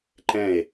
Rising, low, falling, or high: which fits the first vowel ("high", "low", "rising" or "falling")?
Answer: falling